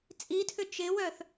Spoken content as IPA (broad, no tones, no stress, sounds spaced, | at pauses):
t͡sʼ i tʰ ʏ t͡ʃ ɪ w œ θ